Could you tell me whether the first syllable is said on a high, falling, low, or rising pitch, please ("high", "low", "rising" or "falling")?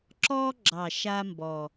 high